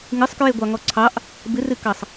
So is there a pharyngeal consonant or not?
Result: no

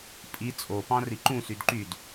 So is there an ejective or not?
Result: yes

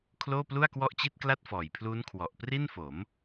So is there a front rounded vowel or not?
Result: no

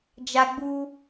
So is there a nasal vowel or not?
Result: no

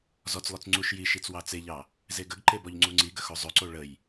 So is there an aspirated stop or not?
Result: no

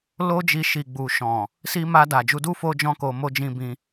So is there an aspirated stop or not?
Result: no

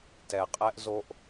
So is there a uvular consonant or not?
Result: yes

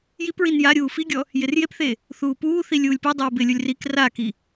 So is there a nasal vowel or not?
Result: no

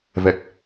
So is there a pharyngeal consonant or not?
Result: no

